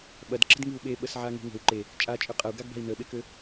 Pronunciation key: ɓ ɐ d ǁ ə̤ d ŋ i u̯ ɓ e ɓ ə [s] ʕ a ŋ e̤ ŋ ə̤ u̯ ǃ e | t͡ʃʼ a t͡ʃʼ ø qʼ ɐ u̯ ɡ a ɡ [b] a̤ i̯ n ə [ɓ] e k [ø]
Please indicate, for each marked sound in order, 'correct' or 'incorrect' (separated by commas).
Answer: correct, correct, correct, correct